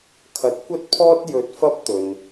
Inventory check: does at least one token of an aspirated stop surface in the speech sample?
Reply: yes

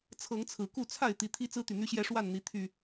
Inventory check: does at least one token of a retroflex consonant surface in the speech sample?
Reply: yes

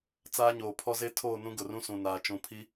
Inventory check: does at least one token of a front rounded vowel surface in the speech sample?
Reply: no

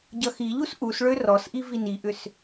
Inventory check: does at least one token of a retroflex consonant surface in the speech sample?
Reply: yes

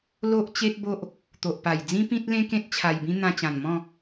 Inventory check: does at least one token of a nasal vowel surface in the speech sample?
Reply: yes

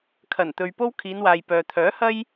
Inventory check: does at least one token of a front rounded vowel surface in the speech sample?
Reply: yes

